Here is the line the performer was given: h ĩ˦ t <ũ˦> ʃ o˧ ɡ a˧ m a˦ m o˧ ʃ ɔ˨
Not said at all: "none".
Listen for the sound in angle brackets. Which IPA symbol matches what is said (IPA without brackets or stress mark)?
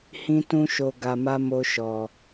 ũ˦